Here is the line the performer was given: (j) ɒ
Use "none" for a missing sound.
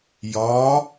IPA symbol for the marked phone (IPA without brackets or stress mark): j